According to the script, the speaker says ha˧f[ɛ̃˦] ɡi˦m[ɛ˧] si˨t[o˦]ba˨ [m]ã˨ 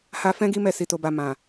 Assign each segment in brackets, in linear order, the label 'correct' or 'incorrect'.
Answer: correct, correct, incorrect, correct

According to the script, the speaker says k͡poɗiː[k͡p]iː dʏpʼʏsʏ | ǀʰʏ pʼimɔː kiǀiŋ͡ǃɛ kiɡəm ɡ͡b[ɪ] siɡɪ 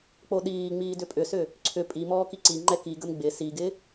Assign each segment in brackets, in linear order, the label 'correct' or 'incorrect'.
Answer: incorrect, correct

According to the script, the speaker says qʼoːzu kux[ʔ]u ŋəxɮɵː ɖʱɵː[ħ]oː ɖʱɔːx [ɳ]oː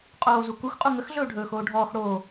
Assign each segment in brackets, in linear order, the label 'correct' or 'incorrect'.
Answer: incorrect, incorrect, incorrect

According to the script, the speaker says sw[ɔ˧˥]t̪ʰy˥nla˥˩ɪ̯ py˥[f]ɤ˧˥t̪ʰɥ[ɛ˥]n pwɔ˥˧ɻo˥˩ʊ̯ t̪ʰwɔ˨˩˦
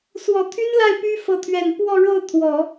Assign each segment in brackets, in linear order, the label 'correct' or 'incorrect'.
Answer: incorrect, correct, incorrect

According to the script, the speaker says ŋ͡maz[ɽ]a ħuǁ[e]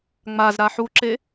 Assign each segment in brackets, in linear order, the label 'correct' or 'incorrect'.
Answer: incorrect, correct

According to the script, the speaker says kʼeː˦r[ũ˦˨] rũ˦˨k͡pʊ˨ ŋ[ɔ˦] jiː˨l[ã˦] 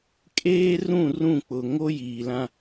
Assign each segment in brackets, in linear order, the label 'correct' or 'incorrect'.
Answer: correct, incorrect, correct

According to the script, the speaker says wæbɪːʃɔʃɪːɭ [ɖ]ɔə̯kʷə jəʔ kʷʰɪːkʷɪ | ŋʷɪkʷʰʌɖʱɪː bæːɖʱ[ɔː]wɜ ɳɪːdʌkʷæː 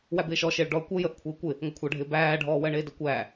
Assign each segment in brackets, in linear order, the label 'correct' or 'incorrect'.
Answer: correct, correct

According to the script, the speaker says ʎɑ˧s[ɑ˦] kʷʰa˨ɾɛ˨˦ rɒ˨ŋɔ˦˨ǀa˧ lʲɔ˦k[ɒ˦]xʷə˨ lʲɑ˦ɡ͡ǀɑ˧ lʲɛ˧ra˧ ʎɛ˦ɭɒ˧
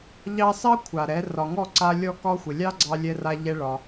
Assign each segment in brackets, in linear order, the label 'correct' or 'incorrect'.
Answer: correct, correct

